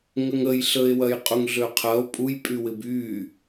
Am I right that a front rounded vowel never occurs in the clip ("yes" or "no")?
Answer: no